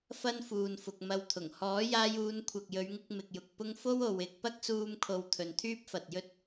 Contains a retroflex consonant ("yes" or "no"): no